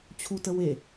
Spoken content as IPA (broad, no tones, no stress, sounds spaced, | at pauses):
t͡ɕʰ u t ə w e